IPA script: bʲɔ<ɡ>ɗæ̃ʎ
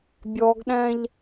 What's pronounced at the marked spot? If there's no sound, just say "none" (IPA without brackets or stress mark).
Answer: ɡ